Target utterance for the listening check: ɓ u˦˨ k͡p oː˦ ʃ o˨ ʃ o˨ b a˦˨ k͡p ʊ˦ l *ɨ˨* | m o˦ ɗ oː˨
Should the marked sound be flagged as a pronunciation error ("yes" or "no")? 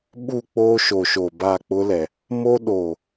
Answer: yes